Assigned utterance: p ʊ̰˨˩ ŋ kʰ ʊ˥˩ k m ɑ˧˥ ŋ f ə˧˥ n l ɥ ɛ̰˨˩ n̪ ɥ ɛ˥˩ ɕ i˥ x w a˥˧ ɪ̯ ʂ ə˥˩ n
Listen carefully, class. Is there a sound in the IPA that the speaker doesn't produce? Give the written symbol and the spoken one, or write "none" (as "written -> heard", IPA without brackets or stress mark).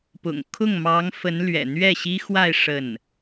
k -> ŋ